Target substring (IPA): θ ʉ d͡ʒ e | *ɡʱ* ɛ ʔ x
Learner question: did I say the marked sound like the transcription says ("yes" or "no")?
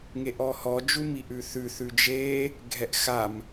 yes